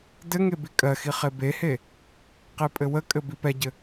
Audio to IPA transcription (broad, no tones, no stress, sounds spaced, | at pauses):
d ɘ ŋ e b i kʼ ɜ x i χ e b e h e | q e pʼ ɘ w ə kʼ ɘ b i p ɛ ɟ ɘ